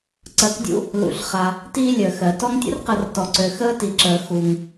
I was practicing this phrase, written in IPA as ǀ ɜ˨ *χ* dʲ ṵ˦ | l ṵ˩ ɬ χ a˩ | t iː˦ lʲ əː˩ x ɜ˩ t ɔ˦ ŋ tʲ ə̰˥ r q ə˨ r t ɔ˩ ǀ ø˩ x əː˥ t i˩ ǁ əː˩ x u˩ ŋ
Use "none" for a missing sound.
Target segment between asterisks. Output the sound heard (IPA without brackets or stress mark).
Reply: k